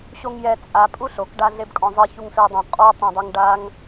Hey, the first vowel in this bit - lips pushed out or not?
yes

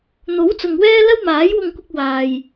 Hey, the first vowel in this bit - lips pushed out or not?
yes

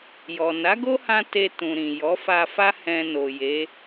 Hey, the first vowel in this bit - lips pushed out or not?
yes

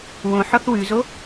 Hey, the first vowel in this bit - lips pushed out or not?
yes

